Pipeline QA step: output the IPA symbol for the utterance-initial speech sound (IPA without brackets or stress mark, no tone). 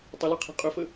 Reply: tˤ